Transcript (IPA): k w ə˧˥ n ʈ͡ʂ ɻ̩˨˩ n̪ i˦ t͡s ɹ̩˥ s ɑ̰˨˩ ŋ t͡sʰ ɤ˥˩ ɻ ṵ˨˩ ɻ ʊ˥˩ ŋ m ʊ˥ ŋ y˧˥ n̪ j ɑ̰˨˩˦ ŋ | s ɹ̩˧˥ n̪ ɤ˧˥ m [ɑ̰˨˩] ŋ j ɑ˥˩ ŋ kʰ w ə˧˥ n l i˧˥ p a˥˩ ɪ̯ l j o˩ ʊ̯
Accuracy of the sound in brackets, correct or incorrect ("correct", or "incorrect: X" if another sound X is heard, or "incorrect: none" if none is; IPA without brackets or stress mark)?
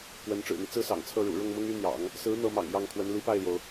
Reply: correct